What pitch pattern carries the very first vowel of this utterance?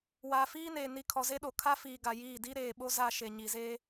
low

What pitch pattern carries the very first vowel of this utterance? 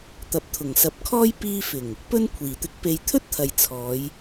low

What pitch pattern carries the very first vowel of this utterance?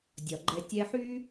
low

